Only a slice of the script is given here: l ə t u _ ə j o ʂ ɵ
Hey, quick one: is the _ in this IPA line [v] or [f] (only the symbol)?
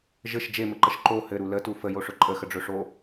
f